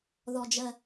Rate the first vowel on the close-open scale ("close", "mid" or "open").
mid